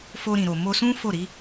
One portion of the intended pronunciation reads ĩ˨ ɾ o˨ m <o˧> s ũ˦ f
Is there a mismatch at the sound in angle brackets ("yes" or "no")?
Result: no